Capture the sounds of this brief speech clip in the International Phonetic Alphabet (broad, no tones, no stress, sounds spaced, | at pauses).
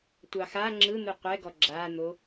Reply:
tʷ ɑ x a ŋ͡ǁ ɯ n̪ ɯ qʷ ɛ ɡ ɔ ɡ͡ǁ a n̪ o